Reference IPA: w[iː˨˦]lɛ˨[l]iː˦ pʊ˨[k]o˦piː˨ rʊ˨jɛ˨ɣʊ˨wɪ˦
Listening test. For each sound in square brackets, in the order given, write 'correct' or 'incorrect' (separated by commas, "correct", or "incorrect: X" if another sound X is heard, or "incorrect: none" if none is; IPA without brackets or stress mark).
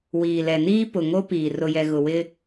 incorrect: iː˨, incorrect: n, incorrect: ŋ